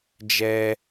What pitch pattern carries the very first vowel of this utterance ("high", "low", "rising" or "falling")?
high